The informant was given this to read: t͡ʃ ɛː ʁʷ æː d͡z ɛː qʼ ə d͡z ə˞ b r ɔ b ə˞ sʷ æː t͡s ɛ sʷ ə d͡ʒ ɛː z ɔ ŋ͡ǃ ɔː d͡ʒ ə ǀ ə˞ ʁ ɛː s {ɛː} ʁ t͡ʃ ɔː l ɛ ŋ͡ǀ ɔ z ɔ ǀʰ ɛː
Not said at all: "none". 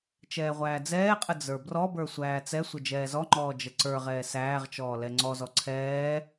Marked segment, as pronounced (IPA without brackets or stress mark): æː